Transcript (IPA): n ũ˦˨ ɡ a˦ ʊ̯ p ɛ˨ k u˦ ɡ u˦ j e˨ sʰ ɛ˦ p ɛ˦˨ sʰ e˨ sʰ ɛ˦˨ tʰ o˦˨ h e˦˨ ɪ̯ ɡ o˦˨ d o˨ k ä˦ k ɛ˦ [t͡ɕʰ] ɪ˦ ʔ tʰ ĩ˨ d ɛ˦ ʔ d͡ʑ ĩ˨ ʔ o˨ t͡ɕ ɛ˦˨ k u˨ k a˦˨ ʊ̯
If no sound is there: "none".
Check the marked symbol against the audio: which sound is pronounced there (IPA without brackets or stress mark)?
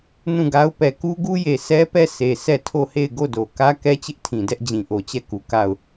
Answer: t͡ɕ